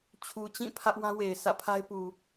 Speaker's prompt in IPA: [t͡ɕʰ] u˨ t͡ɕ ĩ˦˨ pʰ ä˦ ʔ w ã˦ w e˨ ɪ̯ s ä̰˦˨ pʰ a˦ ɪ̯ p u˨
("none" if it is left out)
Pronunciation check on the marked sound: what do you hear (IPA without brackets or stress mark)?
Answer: t͡ɕʰ